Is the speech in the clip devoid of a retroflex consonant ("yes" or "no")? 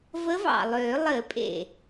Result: yes